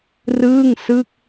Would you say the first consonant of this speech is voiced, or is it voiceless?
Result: voiced